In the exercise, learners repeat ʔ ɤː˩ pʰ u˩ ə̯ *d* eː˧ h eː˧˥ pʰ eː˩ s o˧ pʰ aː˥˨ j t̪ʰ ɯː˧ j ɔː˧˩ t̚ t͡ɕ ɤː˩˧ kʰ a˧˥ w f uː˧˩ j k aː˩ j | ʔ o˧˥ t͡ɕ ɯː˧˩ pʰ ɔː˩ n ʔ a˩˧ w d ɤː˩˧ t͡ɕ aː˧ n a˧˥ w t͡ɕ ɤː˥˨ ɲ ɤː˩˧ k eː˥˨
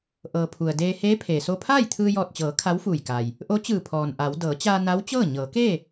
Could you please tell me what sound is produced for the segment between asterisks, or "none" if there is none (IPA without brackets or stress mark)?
d